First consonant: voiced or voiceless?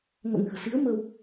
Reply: voiced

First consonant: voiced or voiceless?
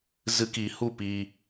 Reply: voiced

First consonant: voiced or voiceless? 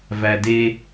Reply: voiced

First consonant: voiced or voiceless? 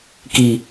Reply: voiceless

